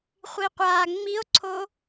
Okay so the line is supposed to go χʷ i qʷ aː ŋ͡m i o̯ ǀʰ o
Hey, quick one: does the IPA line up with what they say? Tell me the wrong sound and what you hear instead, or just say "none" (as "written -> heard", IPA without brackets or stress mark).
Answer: none